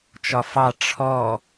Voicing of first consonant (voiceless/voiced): voiceless